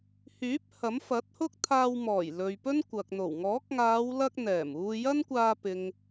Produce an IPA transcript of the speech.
h yː˨˥ p̚ h ɐ˨˥ m f ɐ˨˥ t̚ h ʊ˥ k̚ t̪ʰ aː˧ w m ɔː˨˩ j l ɵ˨ ɥ p ɵ˥ n kʷ ɐ˨ k̚ n̪ o˨˩ w ŋ ɔː˨˥ k̚ ŋ aː˨˧ w l ɐ˧ k̚ n̪ ɛː˨˩ m uː˧ j ɐ˥ n kʷ aː˧ p ɪ˨ ŋ

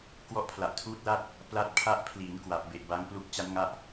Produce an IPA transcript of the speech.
k w ɔ˦˥ ʔ pʰ l a˨˩ ʔ tʰ uː˦˥ t̚ l a˥˩ t̚ | p l a˦˥ t̚ pʰ a˦˥ ʔ pʰ l iː˩˦ n k w a˨˩ p̚ b e˨˩ ʔ b a˦˥ ŋ p l u˦˥ k̚ t͡ɕ a˦˥ n ŋ a˦˥ ʔ

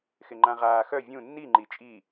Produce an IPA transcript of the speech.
x ɪ ŋ͡ǃ ã ʁ aː x œ vʲ ũ nː i ŋ͡ǃ i t͡ʃʼ i

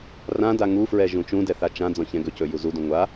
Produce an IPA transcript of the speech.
r ã d a ŋ u f ɹ ɛ ʒ ũ t͡ʃ ũ d ɛ θ a t͡ʃ ã d͡z ɔ̃ ç ɛ̃ ɡ ɵ c ɵ j u z u d ũ ŋʷ a

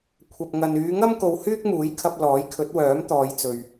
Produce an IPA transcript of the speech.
kʷʰ ɐ˨ p̚ ŋ ɐ˨ n yː˨˧ ŋ ɐ˥ m k o˧ w h yː˥ k̚ m uː˨˥ j kʰ ɐ˧ p̚ l ɔː˨˥ j kʰ ɵ˨˥ t̚ w œː˨˥ m t̪ ɔː˨˧ j t͡s ɵ˨ ɥ

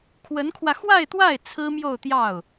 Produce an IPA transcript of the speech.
kʰ w ə˧˥ n kʰ w ä˧ x w a˥˧ ɪ̯ t̪ w a˥˩ ɪ̯ t͡sʰ ɹ̩˥ m j o˥˧ ʊ̯ t̪ j ɑ˥˩ ʊ̯

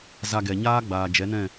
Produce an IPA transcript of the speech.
z a˧ ɡ ɛ˨ ɲ aː˦ ɡ͡b aː˨ d͡ʒ ɛ˨˦ n ɛ̃˦˨

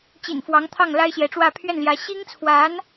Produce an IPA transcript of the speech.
t͡ɕ ḭ˨˩ n f w ɑ˧˥ ŋ t̪ʰ ɑ˥˩ ŋ l a˥ ɪ̯ ɕ j ɛ˧˥ ʈ͡ʂ w ä˥˧ pʰ ɥ ɛ˥˩ n l j ä˧˥ ɕ i˥ ŋ t͡sʰ w a˧˥ n

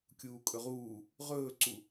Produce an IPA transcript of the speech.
kʲ uː kʼ ɵ ʁ uː | ʁ ɵː ǀ u

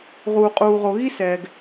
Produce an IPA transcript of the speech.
ʁ uː˨ qʼ uː˨ ʁ o˨ ɣ i˦ s ɛː˨ ɡ

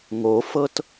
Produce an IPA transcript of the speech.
ŋ o f ɤ t

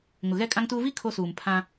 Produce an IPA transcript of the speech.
ŋ ʊ˨ ɣ ɛ˦ kʼ ã˦ ŋ t uː˦ v i˦ kʰ o˦ s uː˨ m pʰ ã˦

